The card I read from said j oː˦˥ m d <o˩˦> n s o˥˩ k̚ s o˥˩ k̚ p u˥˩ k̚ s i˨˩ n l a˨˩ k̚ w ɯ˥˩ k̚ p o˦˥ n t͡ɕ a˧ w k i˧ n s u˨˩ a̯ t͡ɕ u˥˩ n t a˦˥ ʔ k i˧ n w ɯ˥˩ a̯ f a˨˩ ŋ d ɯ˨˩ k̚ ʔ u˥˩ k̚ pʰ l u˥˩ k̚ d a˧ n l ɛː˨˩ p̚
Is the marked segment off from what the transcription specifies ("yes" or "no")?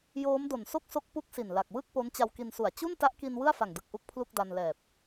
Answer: yes